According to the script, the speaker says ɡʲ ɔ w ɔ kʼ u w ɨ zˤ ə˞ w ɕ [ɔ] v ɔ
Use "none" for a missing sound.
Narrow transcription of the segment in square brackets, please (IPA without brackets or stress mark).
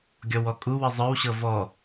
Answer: ɤ